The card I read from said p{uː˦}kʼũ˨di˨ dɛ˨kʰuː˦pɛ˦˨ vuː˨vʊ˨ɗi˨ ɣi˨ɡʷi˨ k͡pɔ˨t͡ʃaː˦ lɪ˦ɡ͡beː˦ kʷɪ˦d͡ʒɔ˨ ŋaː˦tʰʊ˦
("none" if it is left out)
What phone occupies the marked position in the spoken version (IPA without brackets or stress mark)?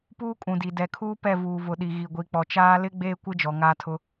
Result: uː˦